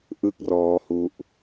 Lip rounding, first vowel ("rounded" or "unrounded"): unrounded